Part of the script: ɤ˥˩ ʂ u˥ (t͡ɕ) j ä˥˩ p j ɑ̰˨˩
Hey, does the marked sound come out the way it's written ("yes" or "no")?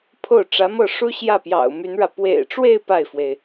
no